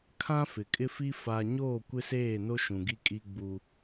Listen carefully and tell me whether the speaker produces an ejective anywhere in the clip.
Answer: yes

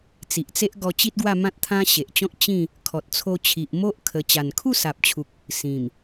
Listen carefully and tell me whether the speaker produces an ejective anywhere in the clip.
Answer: no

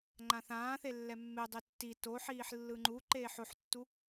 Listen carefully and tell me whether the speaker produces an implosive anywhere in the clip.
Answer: no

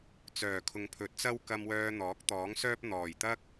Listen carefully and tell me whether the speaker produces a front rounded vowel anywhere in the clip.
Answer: yes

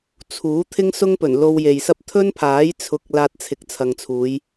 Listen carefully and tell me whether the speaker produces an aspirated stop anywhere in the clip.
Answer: yes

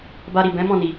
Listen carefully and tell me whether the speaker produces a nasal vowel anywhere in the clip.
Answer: yes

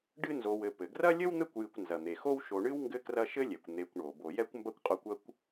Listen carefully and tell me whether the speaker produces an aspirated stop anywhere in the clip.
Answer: no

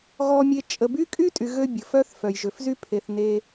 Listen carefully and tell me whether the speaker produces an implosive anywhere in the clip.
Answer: no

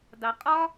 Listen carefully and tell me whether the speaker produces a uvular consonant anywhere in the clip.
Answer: yes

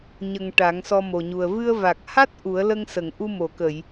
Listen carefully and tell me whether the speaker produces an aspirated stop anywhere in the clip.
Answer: no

